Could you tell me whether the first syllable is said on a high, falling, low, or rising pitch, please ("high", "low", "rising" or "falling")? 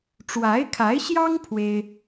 rising